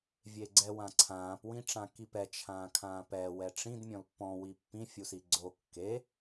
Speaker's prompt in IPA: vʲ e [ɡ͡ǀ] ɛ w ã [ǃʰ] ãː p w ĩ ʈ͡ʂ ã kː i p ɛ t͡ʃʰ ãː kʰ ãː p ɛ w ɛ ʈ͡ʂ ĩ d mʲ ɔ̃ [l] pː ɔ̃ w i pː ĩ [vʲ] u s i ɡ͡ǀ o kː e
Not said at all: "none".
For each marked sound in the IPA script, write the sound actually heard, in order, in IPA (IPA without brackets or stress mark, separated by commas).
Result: ɡ͡ǀ, ǀʰ, l, fʲ